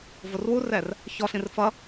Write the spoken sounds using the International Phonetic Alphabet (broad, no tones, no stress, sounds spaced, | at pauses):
v ʊ r w u r ɛ r | ç ɔ ɬ ĩ r f ʌ